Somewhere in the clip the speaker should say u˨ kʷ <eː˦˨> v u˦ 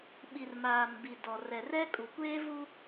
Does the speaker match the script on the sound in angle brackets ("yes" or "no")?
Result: no